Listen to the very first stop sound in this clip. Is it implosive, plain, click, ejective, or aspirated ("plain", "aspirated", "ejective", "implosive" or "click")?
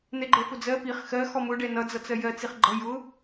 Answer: click